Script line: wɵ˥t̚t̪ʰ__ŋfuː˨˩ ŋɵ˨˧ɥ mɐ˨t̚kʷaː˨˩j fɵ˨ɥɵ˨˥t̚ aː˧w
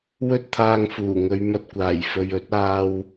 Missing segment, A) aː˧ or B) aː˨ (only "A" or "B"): A